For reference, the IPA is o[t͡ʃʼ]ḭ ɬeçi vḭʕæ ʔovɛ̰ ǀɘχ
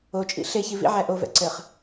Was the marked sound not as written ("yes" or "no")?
no